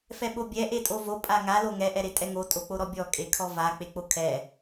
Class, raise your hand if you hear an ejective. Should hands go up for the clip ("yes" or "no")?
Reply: yes